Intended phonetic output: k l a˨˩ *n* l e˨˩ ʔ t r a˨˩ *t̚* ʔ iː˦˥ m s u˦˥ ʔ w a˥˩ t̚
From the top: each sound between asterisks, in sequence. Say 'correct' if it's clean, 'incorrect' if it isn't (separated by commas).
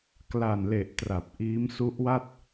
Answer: correct, incorrect